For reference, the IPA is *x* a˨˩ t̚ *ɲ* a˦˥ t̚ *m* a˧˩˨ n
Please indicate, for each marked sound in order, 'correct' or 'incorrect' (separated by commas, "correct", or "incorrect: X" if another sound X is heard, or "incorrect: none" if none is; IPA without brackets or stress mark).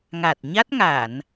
incorrect: ŋ, correct, incorrect: ŋ